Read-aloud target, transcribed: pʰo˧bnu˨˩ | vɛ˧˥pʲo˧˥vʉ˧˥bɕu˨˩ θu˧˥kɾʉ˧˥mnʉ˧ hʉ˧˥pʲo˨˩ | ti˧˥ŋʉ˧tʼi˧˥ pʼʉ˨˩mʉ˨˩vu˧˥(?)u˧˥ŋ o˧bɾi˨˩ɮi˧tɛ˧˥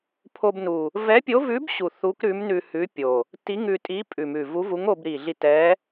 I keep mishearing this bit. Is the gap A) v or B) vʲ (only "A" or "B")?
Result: A